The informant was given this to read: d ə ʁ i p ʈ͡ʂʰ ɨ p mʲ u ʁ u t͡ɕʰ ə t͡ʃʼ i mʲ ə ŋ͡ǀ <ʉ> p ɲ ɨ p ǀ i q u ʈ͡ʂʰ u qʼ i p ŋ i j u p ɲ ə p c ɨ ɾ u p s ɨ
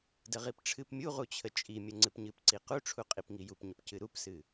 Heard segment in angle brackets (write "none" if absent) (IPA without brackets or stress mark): ɨ